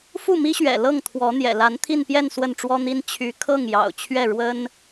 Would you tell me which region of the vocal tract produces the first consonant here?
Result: lips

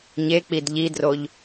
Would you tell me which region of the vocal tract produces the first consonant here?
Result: palate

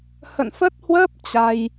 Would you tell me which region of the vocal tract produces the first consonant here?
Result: throat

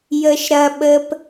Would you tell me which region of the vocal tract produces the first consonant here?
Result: palate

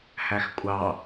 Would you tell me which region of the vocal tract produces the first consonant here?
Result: throat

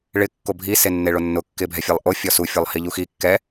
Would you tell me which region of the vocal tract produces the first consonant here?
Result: retroflex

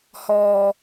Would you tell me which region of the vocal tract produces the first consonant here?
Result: throat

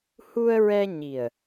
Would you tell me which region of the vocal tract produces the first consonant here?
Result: throat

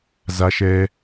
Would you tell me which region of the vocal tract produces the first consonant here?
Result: tongue tip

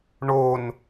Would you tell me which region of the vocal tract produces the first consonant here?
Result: retroflex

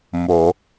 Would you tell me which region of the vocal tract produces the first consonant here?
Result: lips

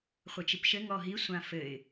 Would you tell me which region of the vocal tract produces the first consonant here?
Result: uvula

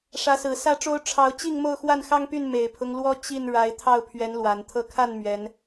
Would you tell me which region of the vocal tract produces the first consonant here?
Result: retroflex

